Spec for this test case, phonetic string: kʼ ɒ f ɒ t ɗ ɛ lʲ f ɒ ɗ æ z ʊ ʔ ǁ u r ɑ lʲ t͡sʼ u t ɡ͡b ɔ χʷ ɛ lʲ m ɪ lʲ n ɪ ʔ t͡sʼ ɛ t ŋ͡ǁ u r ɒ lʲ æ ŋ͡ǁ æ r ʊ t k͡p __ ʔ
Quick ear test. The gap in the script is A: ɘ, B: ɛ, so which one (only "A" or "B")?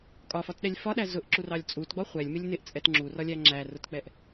B